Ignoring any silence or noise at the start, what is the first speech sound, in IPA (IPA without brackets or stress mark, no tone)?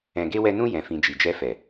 ɛ̃